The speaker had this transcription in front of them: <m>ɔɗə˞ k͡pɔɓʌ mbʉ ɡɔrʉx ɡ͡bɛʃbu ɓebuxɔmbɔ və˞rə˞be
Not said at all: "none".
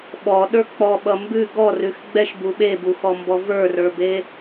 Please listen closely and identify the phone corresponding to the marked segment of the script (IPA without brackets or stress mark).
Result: ɓ